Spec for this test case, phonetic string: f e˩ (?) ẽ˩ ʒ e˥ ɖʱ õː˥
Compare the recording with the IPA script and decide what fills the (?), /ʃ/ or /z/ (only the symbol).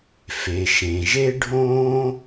ʃ